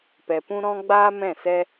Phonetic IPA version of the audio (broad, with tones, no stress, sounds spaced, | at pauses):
p ɛ˧ p ũ˦ ɾ ɔ̃˦ ɡ͡b aː˦ m ɛ̃˦˨ s ɛ˦